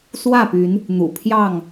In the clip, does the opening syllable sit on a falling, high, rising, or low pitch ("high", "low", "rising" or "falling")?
falling